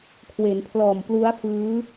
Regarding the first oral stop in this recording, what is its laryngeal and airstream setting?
aspirated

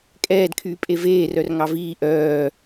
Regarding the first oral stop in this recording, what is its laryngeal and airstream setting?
ejective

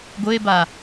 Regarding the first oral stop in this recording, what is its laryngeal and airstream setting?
plain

